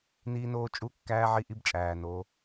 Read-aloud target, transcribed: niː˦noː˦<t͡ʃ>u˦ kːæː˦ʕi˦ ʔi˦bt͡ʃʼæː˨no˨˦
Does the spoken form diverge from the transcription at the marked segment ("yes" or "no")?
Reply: yes